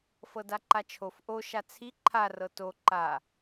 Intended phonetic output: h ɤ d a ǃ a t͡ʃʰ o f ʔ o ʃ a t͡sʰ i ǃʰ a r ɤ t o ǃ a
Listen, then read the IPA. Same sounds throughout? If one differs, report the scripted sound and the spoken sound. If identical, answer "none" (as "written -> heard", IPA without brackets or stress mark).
h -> f